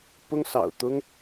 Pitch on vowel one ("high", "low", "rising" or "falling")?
high